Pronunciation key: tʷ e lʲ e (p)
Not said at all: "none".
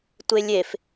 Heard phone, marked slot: f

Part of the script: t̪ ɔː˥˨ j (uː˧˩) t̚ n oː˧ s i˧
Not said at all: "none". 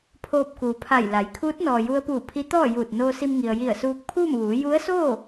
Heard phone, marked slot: uː˧˩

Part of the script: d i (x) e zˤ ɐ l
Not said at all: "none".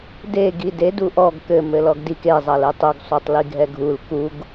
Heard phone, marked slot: k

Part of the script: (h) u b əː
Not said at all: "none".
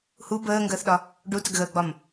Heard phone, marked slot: h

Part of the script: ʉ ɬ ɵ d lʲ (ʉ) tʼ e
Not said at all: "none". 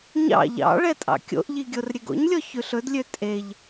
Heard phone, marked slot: ø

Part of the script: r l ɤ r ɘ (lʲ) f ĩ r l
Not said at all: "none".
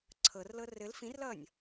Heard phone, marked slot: l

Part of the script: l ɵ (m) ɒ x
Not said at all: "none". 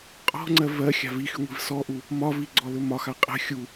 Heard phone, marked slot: m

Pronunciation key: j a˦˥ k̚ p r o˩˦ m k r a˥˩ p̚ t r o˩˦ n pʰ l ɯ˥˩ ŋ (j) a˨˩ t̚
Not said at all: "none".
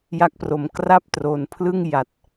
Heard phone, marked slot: j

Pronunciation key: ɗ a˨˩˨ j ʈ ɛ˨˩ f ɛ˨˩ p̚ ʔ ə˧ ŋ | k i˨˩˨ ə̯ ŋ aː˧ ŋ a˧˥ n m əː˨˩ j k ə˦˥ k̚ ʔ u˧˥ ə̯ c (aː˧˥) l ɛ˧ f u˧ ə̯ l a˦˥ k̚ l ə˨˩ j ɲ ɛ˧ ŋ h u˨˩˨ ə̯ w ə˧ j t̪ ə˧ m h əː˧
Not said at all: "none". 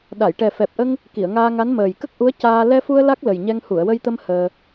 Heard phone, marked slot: aː˧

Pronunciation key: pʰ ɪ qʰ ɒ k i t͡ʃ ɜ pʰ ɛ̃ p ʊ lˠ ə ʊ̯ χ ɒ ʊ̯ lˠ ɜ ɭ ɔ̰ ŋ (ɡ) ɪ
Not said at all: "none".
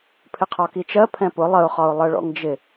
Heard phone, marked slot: d͡ʒ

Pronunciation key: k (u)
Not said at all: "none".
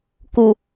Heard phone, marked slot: u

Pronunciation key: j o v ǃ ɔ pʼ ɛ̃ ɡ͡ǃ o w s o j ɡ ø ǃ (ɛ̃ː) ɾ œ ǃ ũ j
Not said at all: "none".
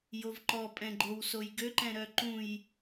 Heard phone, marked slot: ɛ̃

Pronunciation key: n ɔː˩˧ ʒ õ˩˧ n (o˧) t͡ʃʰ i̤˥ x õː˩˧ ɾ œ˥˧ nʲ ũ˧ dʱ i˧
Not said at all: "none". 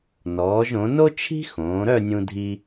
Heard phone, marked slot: o˥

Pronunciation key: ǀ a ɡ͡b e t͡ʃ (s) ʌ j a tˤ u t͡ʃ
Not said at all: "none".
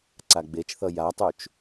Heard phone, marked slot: θ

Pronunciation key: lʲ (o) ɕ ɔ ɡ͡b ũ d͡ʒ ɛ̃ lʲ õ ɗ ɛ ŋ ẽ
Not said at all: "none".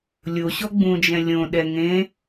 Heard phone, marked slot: o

